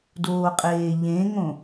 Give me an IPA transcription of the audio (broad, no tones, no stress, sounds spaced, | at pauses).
d oː qʼ eː ʎ ẽ ŋ õ